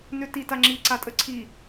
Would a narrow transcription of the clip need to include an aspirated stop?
yes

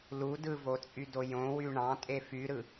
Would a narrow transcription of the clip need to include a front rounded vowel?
yes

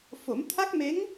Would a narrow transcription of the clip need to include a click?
no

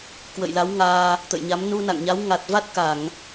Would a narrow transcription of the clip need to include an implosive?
no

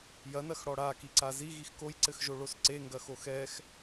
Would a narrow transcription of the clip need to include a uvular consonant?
no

